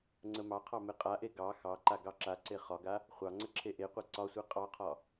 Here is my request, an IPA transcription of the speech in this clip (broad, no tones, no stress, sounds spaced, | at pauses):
ŋ͡ǀ ə m ɑ qʰ ɑ m e qʼ a ʔ e ɡ ɑ x ɑ ǃ a ɡ ɑ ǁ a ǀ e χ ɒ ɡ a | χʷ ɑ ŋ͡ǀ ə ǁʰ e ʔ e qʷ a ǀ ɒ sʷ e qʼ ɑ qʰ ɒ